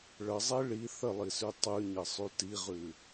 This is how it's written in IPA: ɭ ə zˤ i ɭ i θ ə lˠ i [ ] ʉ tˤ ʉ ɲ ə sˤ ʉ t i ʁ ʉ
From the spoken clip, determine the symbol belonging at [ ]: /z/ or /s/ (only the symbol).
s